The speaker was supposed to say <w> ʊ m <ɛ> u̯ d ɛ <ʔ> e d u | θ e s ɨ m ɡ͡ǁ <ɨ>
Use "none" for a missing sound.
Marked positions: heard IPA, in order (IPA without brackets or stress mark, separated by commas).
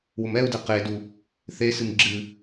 w, ɛ, q, ɨ